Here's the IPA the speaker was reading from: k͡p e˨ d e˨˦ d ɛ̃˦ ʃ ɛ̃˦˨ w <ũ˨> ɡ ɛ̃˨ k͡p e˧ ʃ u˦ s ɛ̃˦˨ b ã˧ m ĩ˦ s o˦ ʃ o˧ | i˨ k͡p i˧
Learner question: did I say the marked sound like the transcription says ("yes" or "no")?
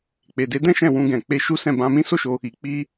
no